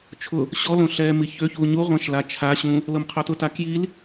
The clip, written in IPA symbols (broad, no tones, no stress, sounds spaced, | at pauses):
t͡ʃʰ ʊ | ɕ ɔ l õ ɬ ɛː m i ç ø ç uː ɲ u ʁʷ ɛ̃ ʃ l a t͡ʃʰ a ɕ ũ | l ɤ m qʰ o t ʊ t a k j i l